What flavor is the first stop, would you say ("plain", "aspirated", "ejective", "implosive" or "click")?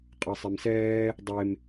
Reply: ejective